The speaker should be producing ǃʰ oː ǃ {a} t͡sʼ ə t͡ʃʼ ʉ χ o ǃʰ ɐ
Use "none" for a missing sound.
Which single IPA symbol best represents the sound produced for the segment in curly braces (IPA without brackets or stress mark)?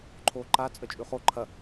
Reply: a